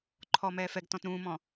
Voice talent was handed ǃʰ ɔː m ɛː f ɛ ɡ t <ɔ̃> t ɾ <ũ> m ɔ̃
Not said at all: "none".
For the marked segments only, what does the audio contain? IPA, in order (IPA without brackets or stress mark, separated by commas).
ɔ̃, ũː